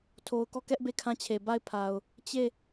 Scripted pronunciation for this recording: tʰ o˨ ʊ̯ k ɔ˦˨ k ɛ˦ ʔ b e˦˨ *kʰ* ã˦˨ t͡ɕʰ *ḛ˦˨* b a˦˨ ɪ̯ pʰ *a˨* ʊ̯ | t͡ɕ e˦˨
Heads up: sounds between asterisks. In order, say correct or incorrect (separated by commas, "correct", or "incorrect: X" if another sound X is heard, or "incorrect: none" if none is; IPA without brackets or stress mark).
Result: correct, incorrect: e˨, correct